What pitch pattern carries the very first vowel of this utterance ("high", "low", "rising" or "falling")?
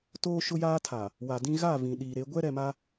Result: high